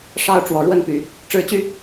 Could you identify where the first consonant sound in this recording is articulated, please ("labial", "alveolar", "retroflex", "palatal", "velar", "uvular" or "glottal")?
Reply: retroflex